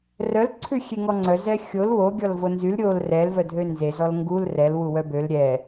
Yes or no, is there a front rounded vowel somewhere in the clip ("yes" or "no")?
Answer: yes